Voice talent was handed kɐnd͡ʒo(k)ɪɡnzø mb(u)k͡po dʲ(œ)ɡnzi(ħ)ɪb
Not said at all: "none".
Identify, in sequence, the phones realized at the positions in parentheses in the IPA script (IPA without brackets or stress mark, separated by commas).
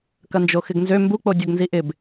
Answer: x, u, œ, ʔ